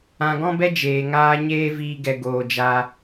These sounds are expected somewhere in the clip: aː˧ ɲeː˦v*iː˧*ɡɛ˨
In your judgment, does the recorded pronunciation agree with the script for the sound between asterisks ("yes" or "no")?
yes